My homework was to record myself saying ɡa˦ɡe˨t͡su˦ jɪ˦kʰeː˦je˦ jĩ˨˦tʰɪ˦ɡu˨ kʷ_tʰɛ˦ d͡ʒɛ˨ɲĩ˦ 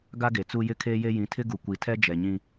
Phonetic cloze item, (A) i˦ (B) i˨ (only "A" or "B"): B